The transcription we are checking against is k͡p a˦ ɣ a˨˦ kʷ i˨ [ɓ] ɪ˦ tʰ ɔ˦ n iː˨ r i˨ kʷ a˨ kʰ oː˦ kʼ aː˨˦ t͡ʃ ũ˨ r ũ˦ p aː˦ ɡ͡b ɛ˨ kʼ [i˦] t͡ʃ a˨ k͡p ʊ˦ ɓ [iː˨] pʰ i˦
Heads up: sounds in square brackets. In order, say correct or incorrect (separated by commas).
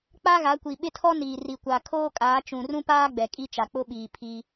correct, correct, correct